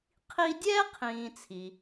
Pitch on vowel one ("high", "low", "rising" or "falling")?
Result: high